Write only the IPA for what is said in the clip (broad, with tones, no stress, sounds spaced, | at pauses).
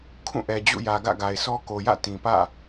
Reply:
kʰ ũ˦˨ ʔ ɛ˨ d͡ʑ ṵ˦˨ j ä˨ ɡ ä̰˦˨ ɡ a˨ ɪ̯ sʰ ɔ˦ k o˨ j ä̰˦˨ t ĩ˨ p ä̰˦˨